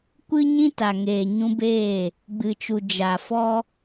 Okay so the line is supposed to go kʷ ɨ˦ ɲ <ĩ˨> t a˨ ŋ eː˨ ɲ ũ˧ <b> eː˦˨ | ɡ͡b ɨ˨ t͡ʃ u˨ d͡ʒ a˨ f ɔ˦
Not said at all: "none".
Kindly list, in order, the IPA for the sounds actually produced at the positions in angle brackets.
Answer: ĩ˦, b

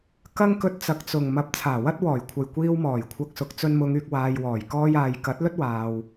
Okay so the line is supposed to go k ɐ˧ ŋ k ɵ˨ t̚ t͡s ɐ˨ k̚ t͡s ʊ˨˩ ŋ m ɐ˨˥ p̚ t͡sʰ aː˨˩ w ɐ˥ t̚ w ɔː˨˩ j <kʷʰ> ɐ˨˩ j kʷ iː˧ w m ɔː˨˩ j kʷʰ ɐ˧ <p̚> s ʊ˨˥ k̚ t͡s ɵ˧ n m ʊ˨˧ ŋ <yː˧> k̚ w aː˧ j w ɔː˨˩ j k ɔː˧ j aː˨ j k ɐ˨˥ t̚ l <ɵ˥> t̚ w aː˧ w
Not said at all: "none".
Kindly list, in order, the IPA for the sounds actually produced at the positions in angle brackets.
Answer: kʷʰ, k̚, yː˧, ɵ˥

